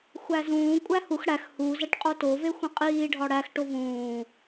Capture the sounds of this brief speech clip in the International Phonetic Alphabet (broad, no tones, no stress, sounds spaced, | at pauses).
xʷ æ z ũː kʷʼ æ h u x ɽ æ x h u z æ ʈ qʼ o t o v e xʷ ĩ qʼ iː ɖʱ ɒ ɽ æ x ʈ o v ũː